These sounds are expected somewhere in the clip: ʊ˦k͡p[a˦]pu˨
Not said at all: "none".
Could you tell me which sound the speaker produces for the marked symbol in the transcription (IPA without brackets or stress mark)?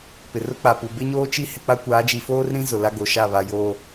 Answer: a˨